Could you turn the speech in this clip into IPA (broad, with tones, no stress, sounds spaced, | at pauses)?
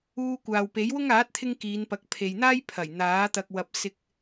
uː˧ kʷ aː˨ w p e˨˥ j w ʊ˥ ŋ aː˨˥ t̚ t̪ʰ ɪ˧ ŋ k iː˨˧ n p ɐ˨˥ k̚ pʰ e˨ j n̪ aː˥ j pʰ ɐ˨˩ j n̪ aː˨˥ t̪ ɐ˧ k̚ w ɐ˧ p̚ s ɪ˧ k̚